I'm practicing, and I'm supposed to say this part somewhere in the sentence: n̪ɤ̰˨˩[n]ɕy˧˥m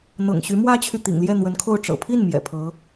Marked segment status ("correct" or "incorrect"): incorrect